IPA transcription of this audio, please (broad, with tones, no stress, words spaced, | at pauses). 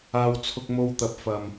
aː˧wt͡sʰʊ˧k̚mo˧wt̪ɐ˨p̚ fɐ˨m